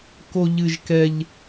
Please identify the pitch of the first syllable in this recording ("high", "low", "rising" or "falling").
high